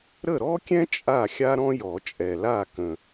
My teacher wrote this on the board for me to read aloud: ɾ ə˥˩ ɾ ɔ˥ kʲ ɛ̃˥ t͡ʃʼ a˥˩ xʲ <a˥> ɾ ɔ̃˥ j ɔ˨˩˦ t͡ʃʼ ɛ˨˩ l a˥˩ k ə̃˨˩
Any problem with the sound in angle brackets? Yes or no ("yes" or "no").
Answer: no